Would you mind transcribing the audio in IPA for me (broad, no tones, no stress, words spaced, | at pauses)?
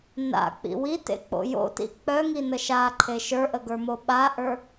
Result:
na̰k͡pḭ witḛk͡po̰ jo̰tḭ k͡pœŋinə ʃaǃʰe ʃə˞ʔəɡə˞mo ɓaʔə˞